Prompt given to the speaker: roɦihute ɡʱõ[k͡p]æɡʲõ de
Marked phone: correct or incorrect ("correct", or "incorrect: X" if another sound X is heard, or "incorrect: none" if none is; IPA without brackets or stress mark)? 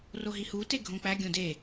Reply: correct